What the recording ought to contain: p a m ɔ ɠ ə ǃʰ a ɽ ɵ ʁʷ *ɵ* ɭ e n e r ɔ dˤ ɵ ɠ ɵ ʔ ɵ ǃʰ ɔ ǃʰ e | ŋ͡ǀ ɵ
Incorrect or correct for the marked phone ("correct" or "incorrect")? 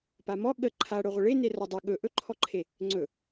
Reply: incorrect